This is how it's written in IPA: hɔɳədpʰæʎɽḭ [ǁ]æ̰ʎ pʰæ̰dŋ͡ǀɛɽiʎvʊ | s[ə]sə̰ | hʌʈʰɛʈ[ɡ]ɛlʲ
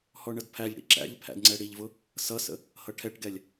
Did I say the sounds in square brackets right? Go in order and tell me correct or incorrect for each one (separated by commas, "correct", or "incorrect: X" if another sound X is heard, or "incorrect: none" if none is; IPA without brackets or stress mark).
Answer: correct, incorrect: ʌ, correct